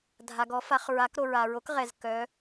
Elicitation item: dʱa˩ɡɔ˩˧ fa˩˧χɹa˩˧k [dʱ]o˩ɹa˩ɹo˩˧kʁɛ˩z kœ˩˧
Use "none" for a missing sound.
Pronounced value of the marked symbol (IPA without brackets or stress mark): ɾ